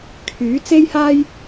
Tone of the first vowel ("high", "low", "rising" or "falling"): rising